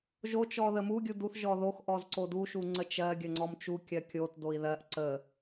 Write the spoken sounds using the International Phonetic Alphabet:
ʒ o t͡ʃ ɔ ð ə m u ɡʲ u d u θ ʒ ɔ ð o x ʔ ɔ z ǀ o d u ʃ u ŋ͡ǀ ə t͡ʃ ɜ ɡʲ ə ŋ͡ǀ ɔ m t͡ʃ u kʲ ɜ kʲ o t d o i̯ ð ɜ ʔ ǀ ə

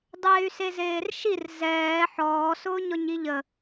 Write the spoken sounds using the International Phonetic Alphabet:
dˤ eː y̯ s e z eː r ʃ i r z ɛː ħ ɔː s ʊː ɲ ɔ ɲ i ʎ ə

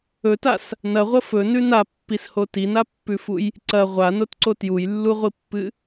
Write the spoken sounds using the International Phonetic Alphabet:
ɵ t a s | n ɐ ʁʷ ɐ f ɵ n ʉ n a pː i s h o t i n a pː ʉ f u j | ǀ ɐ ʁʷ a n o t ǀ o t j u j lː u ʁʷ i pː ɨ

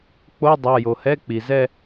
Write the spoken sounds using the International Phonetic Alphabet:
k͡p o˧˥˧ dˤ a˩˧˩ j o˩ h ɛ˧˥˧ k͡p i˩ z ɛ˥˧

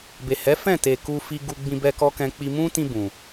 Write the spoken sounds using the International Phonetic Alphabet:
b e˨ h ɛ˨˦ f ɛ̃˦˨ t e˨ k u˧ f i˧ ɡ u˧ ɡ͡b ĩ˧ b ɛ˧ k ɔ˦ k ɛ̃˧ k͡p i˧ m ũ˦ t ĩ˧ b ũ˨

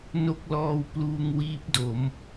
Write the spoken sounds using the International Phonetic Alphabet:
n o˦˥ k̚ l ɔː˧ w p l uː˧ ŋ w iː˦˥ p̚ d o˩˦ m

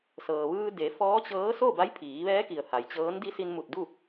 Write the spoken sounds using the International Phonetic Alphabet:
s ɤː˩ ʋ ɯː˧ d e˩˧ f ɔː˧˥ t͡ɕ ɤː˧˥ s o˥˨ b a˧˥ j pʰ iː˩˧ ʋ ɛː˧˥ k i˩ ə̯ h a˩ j t͡ɕ ɤː˧˥ n d i˧˥ s i˧ n m u˧˩ t̚ d u˥˨

